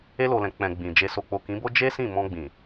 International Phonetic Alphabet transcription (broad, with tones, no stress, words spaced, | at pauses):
e˧lo˨lɛ̃˨ k͡pɛ̃˨ ɡ͡bĩ˨ d͡ʒe˨so˨k͡po˨ kĩ˨˦bo˦ d͡ʒe˦sĩ˦˨mɔ̃˧ ɡ͡bĩ˨